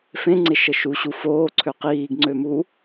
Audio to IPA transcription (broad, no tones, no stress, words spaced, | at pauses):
fẽŋ͡ǀeʃə ʃuɕu foːǀʰøq iːɡŋ͡ǀømu